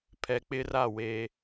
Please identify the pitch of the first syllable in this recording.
low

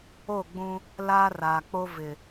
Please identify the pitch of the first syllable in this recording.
falling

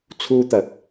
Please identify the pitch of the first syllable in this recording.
high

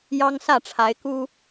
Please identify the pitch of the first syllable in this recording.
high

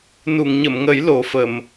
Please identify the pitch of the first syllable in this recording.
low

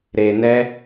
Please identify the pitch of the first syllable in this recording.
low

